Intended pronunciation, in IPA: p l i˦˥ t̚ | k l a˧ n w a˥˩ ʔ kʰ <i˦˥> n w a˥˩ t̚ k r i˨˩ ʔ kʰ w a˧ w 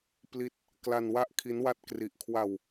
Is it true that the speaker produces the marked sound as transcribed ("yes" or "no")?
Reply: yes